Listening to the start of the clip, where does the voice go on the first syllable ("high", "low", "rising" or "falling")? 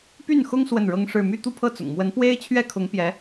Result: falling